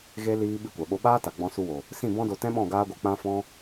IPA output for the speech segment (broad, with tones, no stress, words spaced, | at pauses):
ɣe˦ liː˦ ɓi˧kʷa˨ɓo˧ɓaː˦ ta˨ɡ͡bɔ̃˧su˧wo˨ | sĩ˦˨ bɔ̃˦do˧ tɛ̃˦ɓɔ̃˦˨ ɡaː˦ɡʷɨ˧k͡pã˦fɔ̃˦